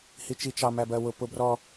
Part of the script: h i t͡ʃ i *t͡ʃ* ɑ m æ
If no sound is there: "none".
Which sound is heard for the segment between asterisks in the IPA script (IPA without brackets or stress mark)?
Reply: t͡ʃ